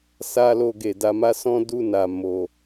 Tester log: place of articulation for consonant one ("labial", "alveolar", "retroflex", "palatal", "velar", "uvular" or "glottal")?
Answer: alveolar